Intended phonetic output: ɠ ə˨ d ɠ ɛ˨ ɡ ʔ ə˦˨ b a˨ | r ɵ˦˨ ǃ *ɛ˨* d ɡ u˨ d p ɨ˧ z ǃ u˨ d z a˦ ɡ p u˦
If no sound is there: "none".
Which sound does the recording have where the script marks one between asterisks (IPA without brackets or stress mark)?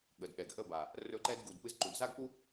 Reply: ɛ˦